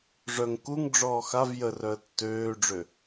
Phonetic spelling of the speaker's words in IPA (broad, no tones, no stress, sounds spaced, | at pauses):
ʐ œ ŋ k u ŋ ɖ͡ʐ ɔː x a v j ə r œ ə̯ tː øː ɖ͡ʐ ø